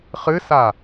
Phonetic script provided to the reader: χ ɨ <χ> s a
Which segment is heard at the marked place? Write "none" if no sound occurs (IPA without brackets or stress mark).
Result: none